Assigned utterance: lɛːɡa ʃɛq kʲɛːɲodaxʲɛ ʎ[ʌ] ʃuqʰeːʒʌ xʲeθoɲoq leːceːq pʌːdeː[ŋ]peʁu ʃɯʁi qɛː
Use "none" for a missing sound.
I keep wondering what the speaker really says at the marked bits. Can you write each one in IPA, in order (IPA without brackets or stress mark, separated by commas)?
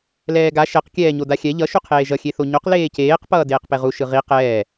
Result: ʌ, q